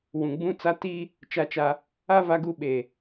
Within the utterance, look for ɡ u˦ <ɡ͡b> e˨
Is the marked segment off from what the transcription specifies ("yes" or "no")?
yes